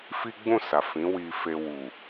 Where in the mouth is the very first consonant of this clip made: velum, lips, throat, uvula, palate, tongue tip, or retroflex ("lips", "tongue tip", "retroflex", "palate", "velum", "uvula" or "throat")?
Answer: lips